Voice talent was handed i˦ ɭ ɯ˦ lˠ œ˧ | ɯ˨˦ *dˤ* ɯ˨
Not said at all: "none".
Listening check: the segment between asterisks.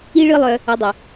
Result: dˤ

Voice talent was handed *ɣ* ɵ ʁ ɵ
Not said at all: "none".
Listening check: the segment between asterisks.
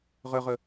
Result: ʁ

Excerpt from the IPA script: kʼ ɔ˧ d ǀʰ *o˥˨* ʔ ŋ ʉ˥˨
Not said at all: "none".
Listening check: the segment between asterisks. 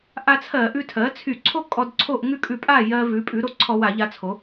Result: o˥˨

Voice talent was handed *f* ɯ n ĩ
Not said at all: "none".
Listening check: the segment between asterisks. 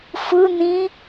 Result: f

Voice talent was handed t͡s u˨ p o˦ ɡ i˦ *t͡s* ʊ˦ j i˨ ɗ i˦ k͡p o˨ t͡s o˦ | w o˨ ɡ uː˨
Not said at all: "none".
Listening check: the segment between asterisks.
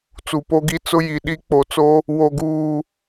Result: t͡s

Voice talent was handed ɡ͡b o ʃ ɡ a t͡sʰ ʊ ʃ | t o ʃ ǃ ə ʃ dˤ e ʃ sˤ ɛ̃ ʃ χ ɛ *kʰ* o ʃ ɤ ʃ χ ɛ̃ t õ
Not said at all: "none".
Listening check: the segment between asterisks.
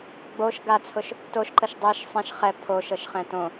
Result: pʰ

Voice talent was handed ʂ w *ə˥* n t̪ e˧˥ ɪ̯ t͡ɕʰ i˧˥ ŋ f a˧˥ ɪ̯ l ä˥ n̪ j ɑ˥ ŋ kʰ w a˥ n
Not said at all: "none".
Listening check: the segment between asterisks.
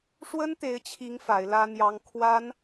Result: ə˥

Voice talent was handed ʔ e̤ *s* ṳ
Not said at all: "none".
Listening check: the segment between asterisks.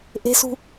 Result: s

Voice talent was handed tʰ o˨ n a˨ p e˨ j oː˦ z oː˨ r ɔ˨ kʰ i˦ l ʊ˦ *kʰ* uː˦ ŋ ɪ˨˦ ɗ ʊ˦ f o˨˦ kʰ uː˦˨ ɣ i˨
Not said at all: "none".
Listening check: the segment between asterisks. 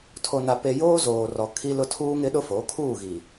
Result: tʰ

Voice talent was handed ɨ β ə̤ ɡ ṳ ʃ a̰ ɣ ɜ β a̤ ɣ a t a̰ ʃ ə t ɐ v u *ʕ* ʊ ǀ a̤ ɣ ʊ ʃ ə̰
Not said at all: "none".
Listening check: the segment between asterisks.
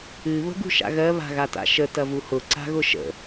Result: h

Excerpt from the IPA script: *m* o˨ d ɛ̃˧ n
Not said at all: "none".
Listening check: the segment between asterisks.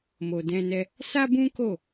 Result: m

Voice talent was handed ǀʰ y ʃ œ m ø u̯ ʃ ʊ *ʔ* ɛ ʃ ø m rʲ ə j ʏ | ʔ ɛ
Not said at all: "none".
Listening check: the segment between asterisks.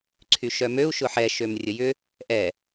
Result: ħ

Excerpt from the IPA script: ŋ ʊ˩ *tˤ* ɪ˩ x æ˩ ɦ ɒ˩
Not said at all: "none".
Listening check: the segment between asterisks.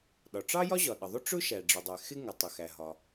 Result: tˤ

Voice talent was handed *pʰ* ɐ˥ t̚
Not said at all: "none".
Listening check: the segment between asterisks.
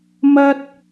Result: m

